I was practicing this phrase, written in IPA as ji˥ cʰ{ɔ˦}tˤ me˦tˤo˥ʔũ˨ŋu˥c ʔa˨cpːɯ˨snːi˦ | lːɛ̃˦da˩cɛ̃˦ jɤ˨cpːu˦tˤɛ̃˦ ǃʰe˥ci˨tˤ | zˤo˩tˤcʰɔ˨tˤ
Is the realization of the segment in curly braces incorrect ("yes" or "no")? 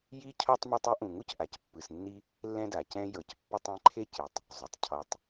yes